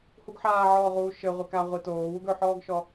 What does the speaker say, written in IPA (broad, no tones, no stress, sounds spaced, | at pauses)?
h u ɡ ħ aː ʕ ɔː ʁ uː ʃ ɘ ʁʷ i k a ʁʷ i t oː w u ɡ ɵ ħ ɔː ɡ ʃ ɔ